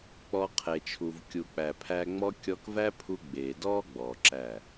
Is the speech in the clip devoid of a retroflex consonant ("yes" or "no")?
yes